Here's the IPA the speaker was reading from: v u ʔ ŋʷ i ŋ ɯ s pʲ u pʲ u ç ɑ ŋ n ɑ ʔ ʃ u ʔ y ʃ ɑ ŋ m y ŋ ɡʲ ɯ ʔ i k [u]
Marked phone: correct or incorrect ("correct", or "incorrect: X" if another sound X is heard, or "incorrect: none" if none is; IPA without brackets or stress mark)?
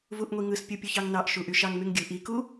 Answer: correct